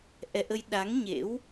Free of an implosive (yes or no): no